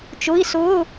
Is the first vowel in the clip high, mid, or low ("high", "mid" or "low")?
high